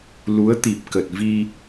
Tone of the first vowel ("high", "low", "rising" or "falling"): rising